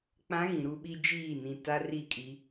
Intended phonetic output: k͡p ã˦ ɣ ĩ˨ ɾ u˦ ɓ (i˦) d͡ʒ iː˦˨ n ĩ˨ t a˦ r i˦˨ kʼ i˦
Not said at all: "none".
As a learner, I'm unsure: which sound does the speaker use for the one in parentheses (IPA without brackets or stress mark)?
i˦